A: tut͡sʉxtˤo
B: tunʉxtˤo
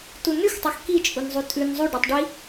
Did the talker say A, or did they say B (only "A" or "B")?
B